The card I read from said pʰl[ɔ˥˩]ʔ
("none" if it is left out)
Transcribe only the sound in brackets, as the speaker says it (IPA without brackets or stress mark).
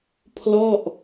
ɔ˥˩